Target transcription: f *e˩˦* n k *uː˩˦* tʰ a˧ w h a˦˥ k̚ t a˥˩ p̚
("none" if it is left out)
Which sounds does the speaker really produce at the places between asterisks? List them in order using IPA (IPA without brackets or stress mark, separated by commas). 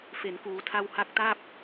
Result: e˩˦, uː˩˦